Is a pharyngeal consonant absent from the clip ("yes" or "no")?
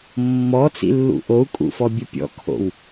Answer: yes